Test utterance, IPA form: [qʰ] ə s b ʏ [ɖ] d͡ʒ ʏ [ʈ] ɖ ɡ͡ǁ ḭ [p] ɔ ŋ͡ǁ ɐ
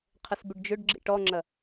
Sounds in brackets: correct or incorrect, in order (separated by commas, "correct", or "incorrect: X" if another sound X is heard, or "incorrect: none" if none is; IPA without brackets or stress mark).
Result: correct, correct, incorrect: none, incorrect: ʈ